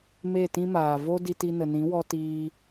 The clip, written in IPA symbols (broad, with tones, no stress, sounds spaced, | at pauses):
m e˦˨ t ĩ˦ m aː˨ v o˦ d i˧ t i˧ n ə˨ n ĩ˨˦ w ɔ˧ t iː˧